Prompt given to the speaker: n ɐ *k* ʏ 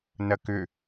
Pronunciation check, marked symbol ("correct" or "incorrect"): correct